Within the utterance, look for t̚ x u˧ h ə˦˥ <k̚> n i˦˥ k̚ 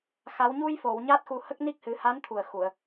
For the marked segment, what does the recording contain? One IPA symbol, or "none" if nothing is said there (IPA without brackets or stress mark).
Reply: k̚